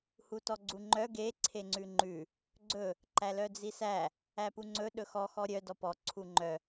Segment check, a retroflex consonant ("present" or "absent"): absent